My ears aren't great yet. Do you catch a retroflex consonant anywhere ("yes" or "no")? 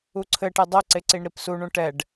yes